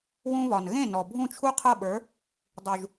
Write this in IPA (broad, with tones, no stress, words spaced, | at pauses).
wũ˧βɒ˩n ɣẽ˥˩nɔ˩ bʱũ˥˩t͡ʃʰu˥qʰɤ˥˩ɓə˞˩˥ | dˤu˩ʒ